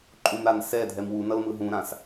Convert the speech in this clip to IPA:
ǃʼ ũ m ɾ a n s ɛ dʱ ɛ m w u n ʌ l m ɯ ɦ ũ ɾ ã s

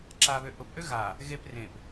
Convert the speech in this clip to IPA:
ǁ a β ø ʔ ʊ p ʔ ø ɣ a | ɣ e p r ẽ p

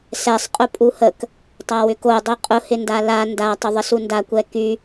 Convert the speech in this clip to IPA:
s ɛ sˤ qʼ ʊ pʼ u h ə k | tˤ a w ʏ k o dˤ i qʼ ʊ h ɪ n d a l a n d a tˤ ʊ ðˤ ə s u n d a kʷ ɛ k y

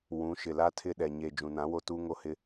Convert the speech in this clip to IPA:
w ũ˨˦ ʃ ɪ˨ l a˦ tʰ ɪ˦ ɗ ɛ˨ ɲ e˨ d͡ʒ ũ˨ n ã˨˦ w o˦ t uː˦ ŋ o˦ h ɪ˦

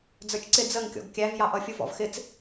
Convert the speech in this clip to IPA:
d͡z ə˞ t͡ʃ ǀ ɪ d͡z ə ŋ kʲ ɔ̰ ɡ kʲ æ v j ɑ ʔ ʌ fʲ u v ɔ̰ v x ɪ t͡s

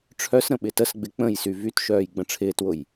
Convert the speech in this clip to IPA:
ʈ͡ʂʰ œ s ɾ ə̃ ɓ ɪ t ə s ɡ͡b ɪ k͡p ə̃ j s y v y t ʃ œː j ɡ͡b ə̃ ʈ͡ʂʰ ɪː t w ʊ j

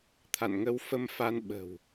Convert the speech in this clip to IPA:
t̪ʰ a̰˧˨ n ŋ ə˧ w f ə˧ m f a˧ n ɓ ə̤˨˩ w

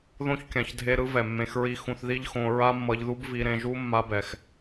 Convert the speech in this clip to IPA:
ð õ˦ ç kʲ ã˨ ç dʱ e˧ ɾ ɯ˦ v ɛ˨ mː ẽ˧ x ɹ i˦ x ũ˧ θ ð i˦ ʎ x õ˧ ɹ a˦ mː ʌ˧ ʎ ð u˦ b v i˧ ɾ ẽ˧ ʒ u˦ mː a˦ b ɛ˨ x

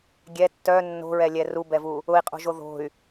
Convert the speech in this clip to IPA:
ɡʲ ɛ tː œ nː o̤ ɹ ɛ lʲ ɛ r u b ɛ v u | ʊ i̯ qʼ o̤ ʒ o ð o̤ y̯

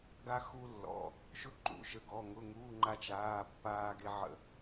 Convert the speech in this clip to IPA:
ɡ a˧ x u˧ lː ɔ̰˩˧˩ | ʃ ʊ˧ ǃ ṵ˩˧˩ ʃ ə˩˧˩ ɡ ɔ˩˧˩ ŋ ʊ˩˧˩ ŋ uː˩˧˩ ŋ͡ǃ a˧ t͡ʃ aː˩˧˩ pː aː˧ ɡ e˧ ʕ ə̰˧

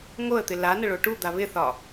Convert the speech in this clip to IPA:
ŋ o ə̯ t̪ ɪ l a n ə ɭ o ʈ u d̪ a β ɪ θ ɒ

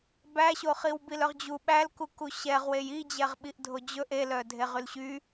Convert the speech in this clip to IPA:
b æ ɕ o χ i w b i l œ ʁ d͡ʑ u ɓ æ l k u k u ɕ ɛ ʁ w e j i d͡ʑ ɛ ʁ ɓ i ʔ dʱ o d͡ʑ ɵ ʔ e l œ dʱ e ʁ y l ɕ y

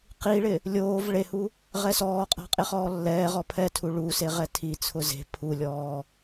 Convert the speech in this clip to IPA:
q i ɭ ɪ | lʲ oː v ɭ e h u | ʁ ɛ s ɔː qʼ a̤ qʼ e χ ɔː lː ɛː ʁ ɔ pʰ ɛ tʰ u ɭ u s e ʁ ɛ tʰ i t͡sʰ ʊ z e̤ pʰ u lʲ ɔː

